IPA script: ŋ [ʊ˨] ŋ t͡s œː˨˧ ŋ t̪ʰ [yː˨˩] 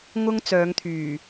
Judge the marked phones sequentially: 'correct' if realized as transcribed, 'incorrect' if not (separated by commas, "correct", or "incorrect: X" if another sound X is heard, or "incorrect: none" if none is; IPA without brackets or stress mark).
incorrect: ʊ˥, correct